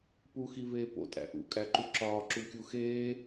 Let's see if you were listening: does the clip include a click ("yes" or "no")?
yes